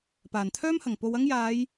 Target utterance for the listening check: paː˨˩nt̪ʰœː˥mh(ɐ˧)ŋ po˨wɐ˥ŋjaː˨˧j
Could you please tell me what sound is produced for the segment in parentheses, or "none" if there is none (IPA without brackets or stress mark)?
ɐ˨˩